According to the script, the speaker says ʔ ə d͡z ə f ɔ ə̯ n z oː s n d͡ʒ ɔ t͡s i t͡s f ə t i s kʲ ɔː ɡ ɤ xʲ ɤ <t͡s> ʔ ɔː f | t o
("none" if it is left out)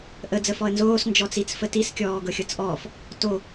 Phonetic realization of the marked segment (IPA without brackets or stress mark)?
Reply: t͡s